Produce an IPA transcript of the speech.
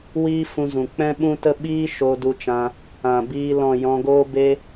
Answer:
w iː˦ f ũ˧ z ũ˨ k͡p ɛ̃˦ ɓ ũ˦ t ə˦ ɓ iː˦ ʃ o˧ d u˧ t͡ʃ ã˧ | ã˨ b iː˧ l ɔ̃˨ j ɔ̃˧ ɡ oː˦ b e˧

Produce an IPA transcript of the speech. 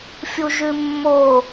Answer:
fʲ u ʒ ʉ mː o

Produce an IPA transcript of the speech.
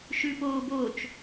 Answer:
ʃ ʉ p oː b o t͡ʃ

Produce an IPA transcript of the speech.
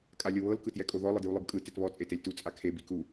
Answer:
kʼ a lʲ ɤ β ɤ l k ɯ t j ɛ kʼ o ð ɔ lˠ ɯ d j u lˠ ɯ b kʼ ɯ t e t β ɔ t͡sʼ e t e lʲ t u t͡sʼ a kʰ e b i k u

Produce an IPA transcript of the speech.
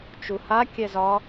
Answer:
t͡ʃ u h a kʲ ɛ z ɒ

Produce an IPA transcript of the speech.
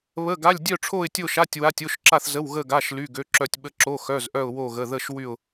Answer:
β ə˧˥˧ ɡ a˧˥˧ lʲ dʲ œ˥˧ ʈ͡ʂʰ o˥˧ ɪ̯ tʲ o˥˧ ʃ a˧˥˧ tʲ w a˧˥˧ tʲ o˧˥˧ ʃ ǁ a˥˧ θ z ə˧˥˧ w ɣ ə˥˧ ɡ a˧˥˧ ʃ l y˧˥˧ ɡ ø˧˥˧ ǁ œ˥˧ tʲ ɓ ə˥˧ ǁ o˧˥˧ x œ˧˥˧ z ʔ œ˥˧ ʊ̯ w o˥˧ ɣ ə˧˥˧ ð ə˥˧ ʃ w y˥˧ ʊ̯

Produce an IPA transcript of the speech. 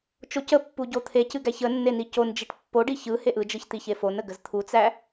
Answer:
t͡ʃ o c ə pː u ɟ o t̪ʰ e c ɨ ɡ æ ç ə nː e n i c o n d͡ʒ i ʈ pː o ɖ i ç ɯ h e ʔ ɯ d͡ʒ ɯ ç t̪ i ç e f o n ə ɡ ə z t̪ʰ u t͡s æ

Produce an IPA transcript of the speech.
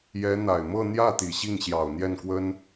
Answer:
j ɛ˧˥ n̪ a˨˩ ɪ̯ m ɤ˥˧ n̪ j ä˥˩ t̪ i˨˩ ɕ i˥˩ ŋ ɕ j ɑ˨˩ ʊ̯ n̪ j ɛ˥˩ n k w ə˥ n

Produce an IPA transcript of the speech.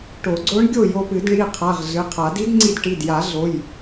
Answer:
ʈ o˨˩˦ ɡ͡ǀ o˧˥ ɳ ɡʲ o˥˩ j o˧ p ɨ˨˩˦ d ɳ i˩˧˩ qʰ a˩˧˩ ʁ ɮ ɨ˩˧˩ qʰ a˨˩˦ d i˧˥ d ŋ͡ǀ i˧ d ʈ i˩˧˩ d j a˨˩˦ ɮ o˩˧˩ j

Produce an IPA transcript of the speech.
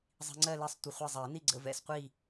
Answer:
zˤ i̤˧ ŋ͡ǀ ɜ˥˧ l ɛ˥˧ sˤ tʷ ə˧ χʷ ɛ˥˧ zˤ ɛ˨˩˦ n i˥˧ ɡ͡ǀ ə̰˥˧ v ɛ̰˥˧ s qʷ i˥˧

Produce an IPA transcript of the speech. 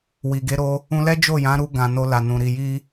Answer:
w i˨ ɡ e˨˦ ɾ o˧ | ũ˧ l ɛ˦ d͡ʒ o˦˨ j ã˨˦ ɾ u˧ ɡ ã˨ n o˧ l a˨ n ũ˨ ɾ i˨ j i˧

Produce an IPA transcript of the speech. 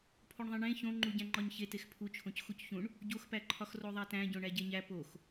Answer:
pʰ o ɳ ðˤ ĩ ɳ ẽ ç õ ŋ͡ǃ u ɟ æ̃ ŋ͡ǃ ɒ ɲ ç e t e x pʰ u t͡ʃʰ õ c x u c ç ũ ɳ | ɟ o x p æ ǃʰ ɒ x r o ðˤ æ t æ̃ ɟ õ ɳ æ ɟ e ɲ æ p o x

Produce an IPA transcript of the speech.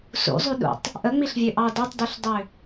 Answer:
s ṵ zˤ y ɗ ṵ tˤ | ʔ ə ŋ͡m i ɬ vʲ ø ʔ ɑ d a tˤ d ø ɬ dˤ ø

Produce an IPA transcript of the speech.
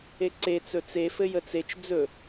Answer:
e ǀ e t͡s ɵ t͡s e f ɘ j ə t͡s e t͡ʃ d͡z ɵ

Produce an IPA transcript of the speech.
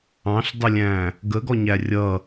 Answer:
ɑ̃ ɬ dˤ ə lʲ æ̃ | ɡ ə ɡ ɔ ɲ æ rʲ ʌ

